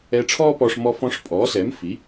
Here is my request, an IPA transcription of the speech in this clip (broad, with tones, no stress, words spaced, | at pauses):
ɛ˧ʈ͡ʂʰɔː˥pɔ˧ʂ mɔ˧fɔ̃˧ʂpʼɔː˩˥sɛ˩˥m fi˩˥